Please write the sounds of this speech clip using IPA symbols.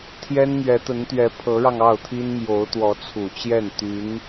t̪ʰ j ɛ˥ n m ɥ ɛ˧˥ t̪ ə˧˥ n t̪ ɥ ɛ˧˥ pʰ ɤ˧˥ ɻ ɑ˧ ŋ ɑ˥˩ ʊ̯ t̪ʰ i˥ n m j o˧˥ ʊ̯ t̪ w ɔ˧˥ t͡sʰ u˨˩ t͡ɕ j ɛ˥˩ n t̪ y˧˥ n

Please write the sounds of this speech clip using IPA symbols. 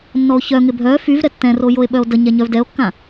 nː ɔ o̯ ç œ ŋ ɪ bʱ œ f y v ɾ ɛ tː ɛ̃ r o j o e̯ ɓ œ o̯ d ə ɲ ɛ ɲ œ v d ɛ o̯ kː ã

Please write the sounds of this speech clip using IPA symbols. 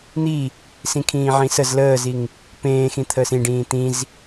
n̪ i | s ĩ kʰ ĩː ʕ ĩ s ə z l əː z i ŋ | p ẽː x ĩ t̪ʰ əː s ĩ ɖ ĩː t̪ ĩ z

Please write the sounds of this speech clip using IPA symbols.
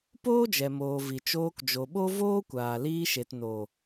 p oː˦ d͡ʒ ɛ˨ m oː˨ v i˨ t͡ʃ oː˧ k d͡ʒ o˨ ɓ o˦ v oː˦ kʷ aː˨ l iː˧ ʃ e˨ t n o˨

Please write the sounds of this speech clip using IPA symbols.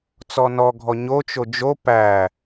t͡s ɔ n ɔ ɡʱ ɔ ɲ o t͡ʃ o d͡ʒ o p æ

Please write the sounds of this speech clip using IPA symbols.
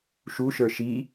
ʃ u ʃ ə˞ ʃ i

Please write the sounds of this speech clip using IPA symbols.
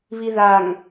β i ð a ŋ

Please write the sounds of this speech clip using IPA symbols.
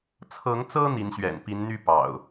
t͡sʰ ɤ˨˦ ŋ t͡s ɤ˦ n̪ i˨˦ n ɕ ɥ ɛ̰˨˩ n p i˨˦ n n̪ y˥˨ p ɑ̰˨˩ ʊ̯

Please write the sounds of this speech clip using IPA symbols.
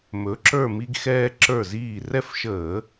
m ɵ˩˥ ǁ ə˞˦˨ m i˦ ɡ x ɛː˦ ǁ ə˞˦˨ z iː˦˨ r ɛ˦˨ f ʃ əː˧˩˧

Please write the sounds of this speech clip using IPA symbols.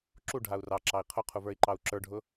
ǁ u ɖʱ a u̯ r ɑ ǁ ɑ i̯ qʰ ʊ qʰ u v ə˞ i̯ ǃ ɑ u̯ ǁ ə˞ ɖʱ ʊ

